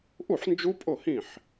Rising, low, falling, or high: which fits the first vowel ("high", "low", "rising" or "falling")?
falling